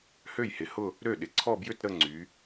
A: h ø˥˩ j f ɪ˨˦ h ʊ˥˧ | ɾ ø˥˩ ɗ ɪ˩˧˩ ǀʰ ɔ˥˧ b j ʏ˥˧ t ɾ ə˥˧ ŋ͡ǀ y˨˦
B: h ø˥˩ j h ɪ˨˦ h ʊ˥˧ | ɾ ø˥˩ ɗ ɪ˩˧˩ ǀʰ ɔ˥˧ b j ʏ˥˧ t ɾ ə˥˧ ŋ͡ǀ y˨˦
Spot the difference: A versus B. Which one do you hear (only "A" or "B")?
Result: B